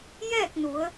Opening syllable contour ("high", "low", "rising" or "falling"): falling